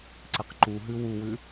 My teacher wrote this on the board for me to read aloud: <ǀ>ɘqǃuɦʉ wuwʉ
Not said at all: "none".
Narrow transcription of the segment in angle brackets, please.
ǀ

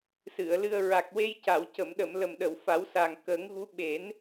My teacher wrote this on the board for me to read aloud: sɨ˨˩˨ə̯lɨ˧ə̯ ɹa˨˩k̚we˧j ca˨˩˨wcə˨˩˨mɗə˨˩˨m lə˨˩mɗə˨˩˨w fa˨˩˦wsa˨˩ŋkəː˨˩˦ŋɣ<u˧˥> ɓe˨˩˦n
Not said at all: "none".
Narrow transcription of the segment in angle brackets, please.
u˧˥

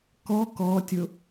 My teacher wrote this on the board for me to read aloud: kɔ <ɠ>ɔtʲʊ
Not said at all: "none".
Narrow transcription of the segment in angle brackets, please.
k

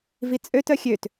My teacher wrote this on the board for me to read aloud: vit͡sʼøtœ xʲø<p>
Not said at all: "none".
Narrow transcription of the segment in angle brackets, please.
t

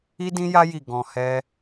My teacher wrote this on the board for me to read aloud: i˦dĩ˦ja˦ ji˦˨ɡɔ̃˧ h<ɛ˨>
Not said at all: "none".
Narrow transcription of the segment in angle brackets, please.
ɛ˦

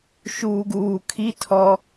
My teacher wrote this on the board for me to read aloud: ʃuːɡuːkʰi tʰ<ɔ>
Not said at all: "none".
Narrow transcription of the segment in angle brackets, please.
ɔ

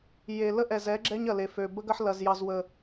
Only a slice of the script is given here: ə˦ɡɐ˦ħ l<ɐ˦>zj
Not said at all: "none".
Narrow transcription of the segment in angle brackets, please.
ɐ˨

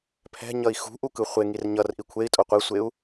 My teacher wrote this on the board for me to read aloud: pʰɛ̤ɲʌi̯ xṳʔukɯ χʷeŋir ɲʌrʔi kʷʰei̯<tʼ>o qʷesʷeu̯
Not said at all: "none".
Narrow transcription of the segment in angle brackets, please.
tʼ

